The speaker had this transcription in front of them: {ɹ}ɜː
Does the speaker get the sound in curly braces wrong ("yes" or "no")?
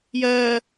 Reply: yes